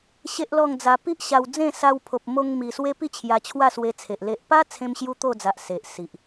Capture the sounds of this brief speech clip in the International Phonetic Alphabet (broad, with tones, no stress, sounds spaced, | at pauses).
ɕ e˦ ʔ l ɔ˥˧ ŋ d͡z a˧ p i˦ ʔ ɕ a˧ w d͡z ẽ˥˧ s a˧ w pʰ o˨ p̚ m o˧ ŋ m i˨˩ s w e˦ p i˥˧ t͡ɕʰ j a˧ t͡ɕʰ w a˥˧ s w e˧ t͡sʰ e˨ ʔ l e˨ ʔ p a˦ t͡sʰ ẽ˦ m ɕ j u˦ t̪ o˥˧ d͡z a˨ ʔ s e˨ ʔ s i˨ ʔ